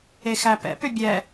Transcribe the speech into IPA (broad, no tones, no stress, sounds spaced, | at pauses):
e x æ p ɛ̰ p ʏ bʲ ɛ